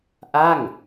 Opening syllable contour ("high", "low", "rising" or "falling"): falling